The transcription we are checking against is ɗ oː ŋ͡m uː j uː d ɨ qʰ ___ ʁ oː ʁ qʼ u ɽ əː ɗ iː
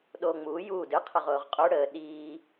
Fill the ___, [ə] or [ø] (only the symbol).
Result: ə